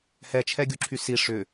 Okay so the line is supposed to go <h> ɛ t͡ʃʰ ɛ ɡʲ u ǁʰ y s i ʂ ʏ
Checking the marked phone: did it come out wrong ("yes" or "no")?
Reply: no